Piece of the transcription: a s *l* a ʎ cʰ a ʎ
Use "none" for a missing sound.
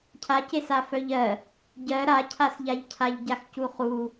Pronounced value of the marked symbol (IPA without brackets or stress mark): ʎ